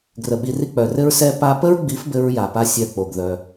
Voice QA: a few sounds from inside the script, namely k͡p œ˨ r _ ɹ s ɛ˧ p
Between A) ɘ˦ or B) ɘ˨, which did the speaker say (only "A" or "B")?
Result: A